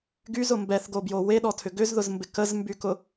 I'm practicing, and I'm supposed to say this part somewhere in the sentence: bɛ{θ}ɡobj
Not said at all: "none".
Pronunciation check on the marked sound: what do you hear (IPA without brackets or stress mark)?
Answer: θ